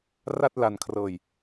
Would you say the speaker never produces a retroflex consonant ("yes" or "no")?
yes